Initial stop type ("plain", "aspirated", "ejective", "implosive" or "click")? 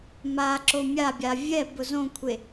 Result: click